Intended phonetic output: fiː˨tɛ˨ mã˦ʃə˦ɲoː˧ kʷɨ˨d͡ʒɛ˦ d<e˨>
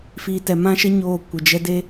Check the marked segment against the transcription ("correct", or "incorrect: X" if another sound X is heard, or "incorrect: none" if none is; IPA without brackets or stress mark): incorrect: e˦